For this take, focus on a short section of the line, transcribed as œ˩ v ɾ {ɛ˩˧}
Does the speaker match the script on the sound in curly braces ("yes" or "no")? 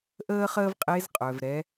yes